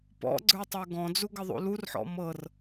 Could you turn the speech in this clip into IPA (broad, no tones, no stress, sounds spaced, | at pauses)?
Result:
p ɔ̰ ɡ͡ǀ ə˞ tˤ ə˞ ɡ ɔ̃ d͡z u ɡ ə ðˤ ṵ l u r ħ ɔ̰ m ɤ r